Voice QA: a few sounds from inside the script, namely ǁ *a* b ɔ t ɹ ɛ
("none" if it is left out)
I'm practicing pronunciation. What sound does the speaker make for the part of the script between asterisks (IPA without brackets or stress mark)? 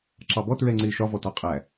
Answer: ɑ